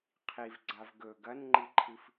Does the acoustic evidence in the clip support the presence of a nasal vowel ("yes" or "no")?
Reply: no